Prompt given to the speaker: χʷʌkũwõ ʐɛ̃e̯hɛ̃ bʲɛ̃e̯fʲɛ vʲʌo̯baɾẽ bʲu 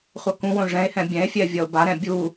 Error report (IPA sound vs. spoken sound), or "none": ẽ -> ɛ̃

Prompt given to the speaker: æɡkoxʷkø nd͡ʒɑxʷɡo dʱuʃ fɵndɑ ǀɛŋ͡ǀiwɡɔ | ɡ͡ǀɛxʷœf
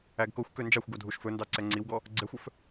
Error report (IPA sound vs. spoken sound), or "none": none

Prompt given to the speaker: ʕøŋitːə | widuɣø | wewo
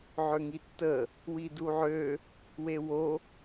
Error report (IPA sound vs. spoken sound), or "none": ɣ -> ʕ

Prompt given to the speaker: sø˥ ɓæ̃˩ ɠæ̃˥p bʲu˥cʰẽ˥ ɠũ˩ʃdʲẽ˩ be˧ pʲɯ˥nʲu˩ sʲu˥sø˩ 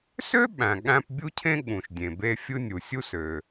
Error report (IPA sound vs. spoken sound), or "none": pʲ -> fʲ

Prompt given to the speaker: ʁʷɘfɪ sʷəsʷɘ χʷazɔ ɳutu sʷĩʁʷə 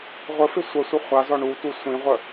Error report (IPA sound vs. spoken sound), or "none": none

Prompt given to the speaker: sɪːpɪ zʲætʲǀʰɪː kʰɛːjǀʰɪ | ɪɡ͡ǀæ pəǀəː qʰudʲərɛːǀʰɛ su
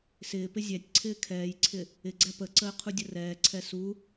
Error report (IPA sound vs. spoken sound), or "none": none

